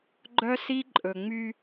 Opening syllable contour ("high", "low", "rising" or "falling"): high